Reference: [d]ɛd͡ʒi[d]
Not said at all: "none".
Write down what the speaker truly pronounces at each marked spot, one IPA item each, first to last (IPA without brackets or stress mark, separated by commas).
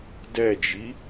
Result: d, none